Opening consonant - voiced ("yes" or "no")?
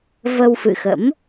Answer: yes